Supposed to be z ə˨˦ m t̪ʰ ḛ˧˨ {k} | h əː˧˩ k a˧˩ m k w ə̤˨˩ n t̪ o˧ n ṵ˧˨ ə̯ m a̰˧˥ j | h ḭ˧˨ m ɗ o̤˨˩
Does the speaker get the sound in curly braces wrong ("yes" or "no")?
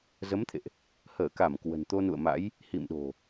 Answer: yes